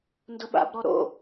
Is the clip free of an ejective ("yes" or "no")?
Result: yes